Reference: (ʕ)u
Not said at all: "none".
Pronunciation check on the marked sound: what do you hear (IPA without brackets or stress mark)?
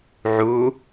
ʕ